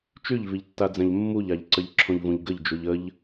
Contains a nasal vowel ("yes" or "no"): yes